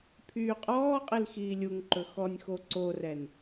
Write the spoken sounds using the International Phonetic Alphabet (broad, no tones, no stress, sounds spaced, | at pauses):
pʰ yː qʼ ɔː qʼ i l x iː lʲ u ŋ ǃ ɵ x ɔ nʲ x o ǀ o r ɛ n